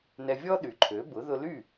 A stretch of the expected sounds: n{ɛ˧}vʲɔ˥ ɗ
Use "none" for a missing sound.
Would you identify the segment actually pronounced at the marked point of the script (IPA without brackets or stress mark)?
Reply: ɛ˧